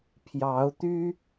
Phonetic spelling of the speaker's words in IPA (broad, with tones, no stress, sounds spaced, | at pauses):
pʰ j ɑ˨˦ ʊ̯ t̪ y˦